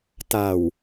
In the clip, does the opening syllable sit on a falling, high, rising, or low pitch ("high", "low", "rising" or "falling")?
low